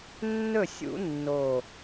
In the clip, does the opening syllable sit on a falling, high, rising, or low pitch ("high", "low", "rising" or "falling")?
falling